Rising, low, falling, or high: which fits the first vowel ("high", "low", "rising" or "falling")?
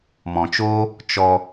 low